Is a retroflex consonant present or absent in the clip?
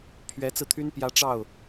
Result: present